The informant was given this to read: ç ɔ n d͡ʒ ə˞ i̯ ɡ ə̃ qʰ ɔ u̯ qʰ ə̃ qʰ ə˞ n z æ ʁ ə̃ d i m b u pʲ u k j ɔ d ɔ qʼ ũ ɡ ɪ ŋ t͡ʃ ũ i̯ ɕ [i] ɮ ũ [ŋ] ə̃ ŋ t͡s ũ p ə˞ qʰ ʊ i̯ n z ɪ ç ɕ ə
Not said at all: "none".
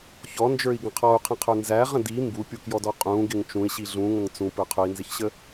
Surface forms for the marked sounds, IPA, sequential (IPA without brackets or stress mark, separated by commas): i, ŋ